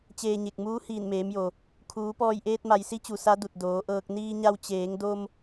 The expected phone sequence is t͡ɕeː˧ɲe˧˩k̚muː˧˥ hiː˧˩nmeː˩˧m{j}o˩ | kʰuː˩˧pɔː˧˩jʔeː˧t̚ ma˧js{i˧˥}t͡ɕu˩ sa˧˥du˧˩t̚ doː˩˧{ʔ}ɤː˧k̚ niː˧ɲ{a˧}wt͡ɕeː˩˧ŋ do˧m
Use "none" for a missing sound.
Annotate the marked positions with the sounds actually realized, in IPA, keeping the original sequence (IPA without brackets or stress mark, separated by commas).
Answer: j, i˧˥, ʔ, a˧